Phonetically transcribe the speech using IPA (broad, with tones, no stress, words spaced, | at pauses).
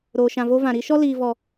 ɾoː˨ ʃã˨vo˧ vã˨ɾi˧ʃɔ˦ liː˨vɔ˨